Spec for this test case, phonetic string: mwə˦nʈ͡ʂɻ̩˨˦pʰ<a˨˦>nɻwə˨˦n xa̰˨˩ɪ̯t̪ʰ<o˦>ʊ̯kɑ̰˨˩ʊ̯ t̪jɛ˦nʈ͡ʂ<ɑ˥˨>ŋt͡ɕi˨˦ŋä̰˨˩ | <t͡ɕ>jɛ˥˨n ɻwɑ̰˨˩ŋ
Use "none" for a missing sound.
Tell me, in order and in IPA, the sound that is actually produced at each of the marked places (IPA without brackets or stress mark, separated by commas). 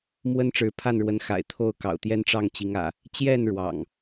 a˥˨, o˥˨, ɑ˥˨, t͡ɕ